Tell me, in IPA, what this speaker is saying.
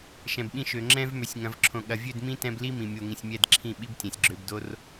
ʃ ɛ̃˨ b ɓ ĩ˧ ʃ ø˨ ŋ͡ǁ ɛ̃˧ v m ø˨ sʲ ŋ ɐ̃˨ v ǁʰ õ˨ ɠ ɐ˨ vʲ ø˦˨ d m ĩ˦ t ɛ̃˧ b l i˦ m ĩ˨ mʲ o˨ ŋ ĩ˨ sʲ mʲ ɛ˦˨ d ǁʰ ĩ˦˨ ɓ i˦ b tʲ ɛ̃˨ sʲ ɡ͡ǁ ø˧ b d o˦ r

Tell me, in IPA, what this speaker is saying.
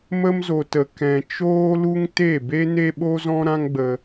m ə˧ m z o˨ t ə˨ k ɛ̃˨ t͡ʃ oː˧ l u˧ ŋ t e˦˨ b e˦ n e˦ ɓ o˦ z ɔ̃˦ ɾ ã˦ ŋ ɡ͡b ə˧

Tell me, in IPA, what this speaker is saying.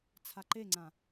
t͡sʰ a ǃ e ŋ͡ǀ ã

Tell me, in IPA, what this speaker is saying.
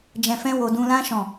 d͡ʒ ɛ̃˧ f ɛ̃˦ w o˧ d ũ˧ l ã˦ ʃ ɔ̃˦˨

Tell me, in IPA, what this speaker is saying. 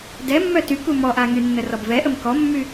d ɛ mː œ t y k u m ɔ ʔ a ŋ y nː ə r ɔ b v ɛ ʔ ə m k ɔ mː y

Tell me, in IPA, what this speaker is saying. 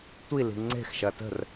tʷ i l i̤ ŋ͡ǀ e̤ x ʃ ɐ t ə̤ r

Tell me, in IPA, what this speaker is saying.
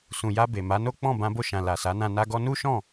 s ũ˨ j a˧ b e˨ m a˨˦ n o˦ k͡p ɔ̃˦˨ b ã˧ b o˧ ʃ ã˨ l a˨ s a˨˦ n ã˧ n a˧ ɡ ɔ˧ n u˦ ʃ ɔ̃˦˨

